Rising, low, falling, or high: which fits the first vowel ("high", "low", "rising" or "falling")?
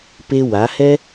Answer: high